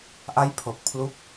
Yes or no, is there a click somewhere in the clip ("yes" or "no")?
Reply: no